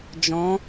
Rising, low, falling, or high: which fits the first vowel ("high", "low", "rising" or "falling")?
rising